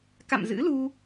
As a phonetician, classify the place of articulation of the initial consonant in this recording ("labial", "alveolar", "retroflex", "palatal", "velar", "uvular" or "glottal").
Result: velar